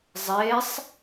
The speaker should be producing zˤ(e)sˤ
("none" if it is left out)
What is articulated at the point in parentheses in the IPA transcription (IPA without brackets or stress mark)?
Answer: e